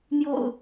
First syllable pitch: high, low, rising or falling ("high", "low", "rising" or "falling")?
low